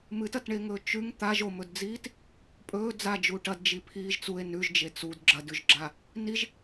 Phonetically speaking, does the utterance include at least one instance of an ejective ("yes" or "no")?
yes